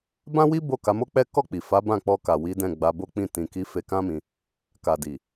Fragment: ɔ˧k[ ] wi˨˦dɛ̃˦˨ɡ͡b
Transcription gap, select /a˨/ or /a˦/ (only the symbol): a˨